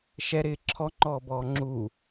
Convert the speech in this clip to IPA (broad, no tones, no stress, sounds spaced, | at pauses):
ʃ ɛ ɾ ɪː ǁʰ ɔ ŋ͡ǃ ɔː b ɔː ŋ͡ǁ u